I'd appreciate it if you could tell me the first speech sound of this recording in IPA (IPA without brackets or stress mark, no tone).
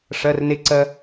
ʂ